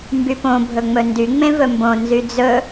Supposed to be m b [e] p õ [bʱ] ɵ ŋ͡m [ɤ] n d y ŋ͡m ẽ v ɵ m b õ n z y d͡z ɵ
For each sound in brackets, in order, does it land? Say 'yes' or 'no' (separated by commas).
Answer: no, yes, no